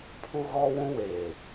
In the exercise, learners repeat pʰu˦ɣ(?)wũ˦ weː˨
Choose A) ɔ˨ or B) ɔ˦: B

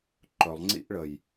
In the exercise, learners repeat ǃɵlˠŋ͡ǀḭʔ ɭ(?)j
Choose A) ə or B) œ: A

